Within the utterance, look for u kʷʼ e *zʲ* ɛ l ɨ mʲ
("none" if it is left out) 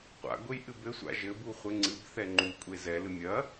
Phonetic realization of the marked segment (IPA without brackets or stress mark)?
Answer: z